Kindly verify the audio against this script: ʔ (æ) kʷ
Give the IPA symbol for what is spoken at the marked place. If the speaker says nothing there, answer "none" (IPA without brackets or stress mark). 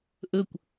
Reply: ə